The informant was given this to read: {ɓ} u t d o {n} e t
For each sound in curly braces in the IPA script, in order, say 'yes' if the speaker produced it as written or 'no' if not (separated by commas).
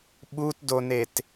yes, yes